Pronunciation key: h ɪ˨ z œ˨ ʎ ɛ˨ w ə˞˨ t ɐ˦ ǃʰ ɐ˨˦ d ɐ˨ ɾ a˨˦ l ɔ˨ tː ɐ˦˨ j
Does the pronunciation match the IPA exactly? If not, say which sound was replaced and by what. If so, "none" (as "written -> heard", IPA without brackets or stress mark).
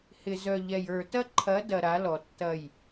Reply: w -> j